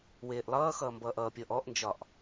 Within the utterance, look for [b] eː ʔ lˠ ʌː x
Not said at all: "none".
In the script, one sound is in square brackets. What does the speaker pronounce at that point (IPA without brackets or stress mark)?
w